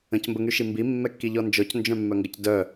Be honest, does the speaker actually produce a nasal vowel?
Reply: yes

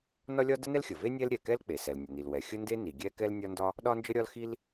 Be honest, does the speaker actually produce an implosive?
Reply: yes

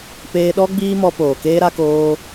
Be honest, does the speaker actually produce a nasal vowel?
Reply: no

